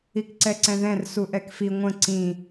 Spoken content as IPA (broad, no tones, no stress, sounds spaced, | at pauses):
i k ǀ ɛ ǀ ɛ̃ ð ɛ̃ r s u ʔ ɛ k f i ŋʷ ə̃ ǀ ĩ